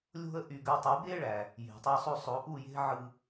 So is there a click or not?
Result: no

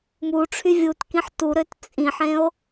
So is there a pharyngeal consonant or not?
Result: yes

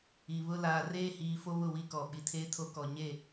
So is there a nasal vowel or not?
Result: no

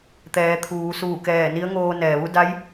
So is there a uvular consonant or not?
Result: no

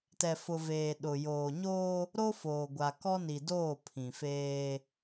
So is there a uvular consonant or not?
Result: no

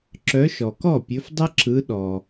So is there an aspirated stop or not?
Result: no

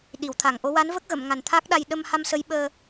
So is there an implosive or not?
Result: yes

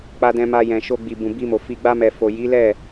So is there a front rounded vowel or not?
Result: no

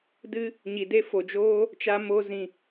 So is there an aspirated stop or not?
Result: no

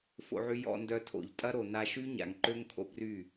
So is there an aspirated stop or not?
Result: yes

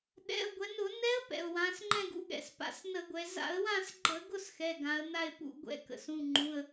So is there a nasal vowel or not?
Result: yes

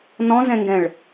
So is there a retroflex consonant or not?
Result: yes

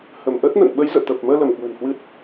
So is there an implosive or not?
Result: yes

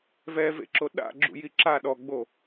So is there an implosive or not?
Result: yes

